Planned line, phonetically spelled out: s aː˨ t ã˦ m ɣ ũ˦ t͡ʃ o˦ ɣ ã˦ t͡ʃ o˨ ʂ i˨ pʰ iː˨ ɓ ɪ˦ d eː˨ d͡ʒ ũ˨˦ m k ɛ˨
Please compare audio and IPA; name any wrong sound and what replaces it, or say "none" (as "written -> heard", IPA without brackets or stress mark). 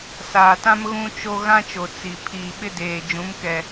ʂ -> t͡s